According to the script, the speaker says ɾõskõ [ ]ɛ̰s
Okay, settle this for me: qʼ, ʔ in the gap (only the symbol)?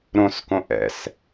ʔ